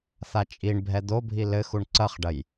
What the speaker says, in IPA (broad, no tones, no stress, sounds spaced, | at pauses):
θ a t͡ʃʼ i ɳ bʱ ɛ d̪ o bʱ i l ɘ x u ɳ ǀ ɐ χ ɖ ɐ j